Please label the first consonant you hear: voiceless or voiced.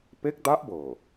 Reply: voiceless